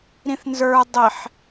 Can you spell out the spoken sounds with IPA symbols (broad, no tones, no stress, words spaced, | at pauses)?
ɾĩθnzə˞ dˤɪħ